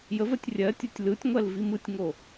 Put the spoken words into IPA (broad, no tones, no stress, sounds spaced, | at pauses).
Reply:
j ə v ɜ tʲ rʲ ɜ tʲ o tʲ l ɯ tʲ ŋʷ ɜ l v i m ɯ tʲ ŋ o